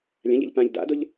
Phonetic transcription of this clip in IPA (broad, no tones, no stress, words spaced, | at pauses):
lʲãʎɛ̰ʎ pãʎ da̰dʊʎ